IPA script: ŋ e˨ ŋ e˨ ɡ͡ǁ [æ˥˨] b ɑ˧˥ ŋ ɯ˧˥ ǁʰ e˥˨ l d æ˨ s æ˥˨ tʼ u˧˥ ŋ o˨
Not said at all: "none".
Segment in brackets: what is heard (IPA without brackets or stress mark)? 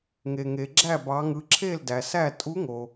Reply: æ˥˨